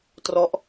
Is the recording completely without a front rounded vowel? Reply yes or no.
yes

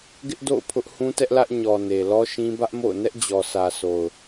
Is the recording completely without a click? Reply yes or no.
yes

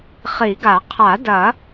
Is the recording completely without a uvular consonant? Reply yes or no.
no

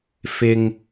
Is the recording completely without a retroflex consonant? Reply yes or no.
yes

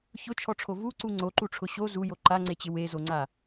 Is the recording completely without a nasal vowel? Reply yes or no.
yes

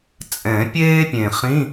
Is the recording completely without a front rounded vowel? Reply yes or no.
yes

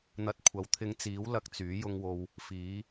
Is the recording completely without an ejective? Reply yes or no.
yes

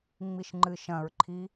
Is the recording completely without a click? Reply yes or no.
no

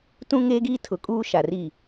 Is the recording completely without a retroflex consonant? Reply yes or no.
yes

